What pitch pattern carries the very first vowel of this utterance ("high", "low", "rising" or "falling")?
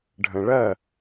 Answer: low